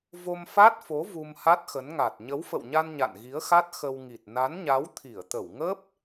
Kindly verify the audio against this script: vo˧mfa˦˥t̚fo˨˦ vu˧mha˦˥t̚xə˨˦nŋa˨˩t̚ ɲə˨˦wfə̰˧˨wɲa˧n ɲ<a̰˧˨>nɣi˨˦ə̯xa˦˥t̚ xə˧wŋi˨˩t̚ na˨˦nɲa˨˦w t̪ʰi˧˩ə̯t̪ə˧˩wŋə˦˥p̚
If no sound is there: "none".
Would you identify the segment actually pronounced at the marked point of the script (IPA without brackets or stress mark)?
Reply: a̰˧˨